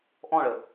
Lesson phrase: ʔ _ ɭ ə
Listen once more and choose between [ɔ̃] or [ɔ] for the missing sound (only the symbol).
ɔ̃